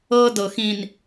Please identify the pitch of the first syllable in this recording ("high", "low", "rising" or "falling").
high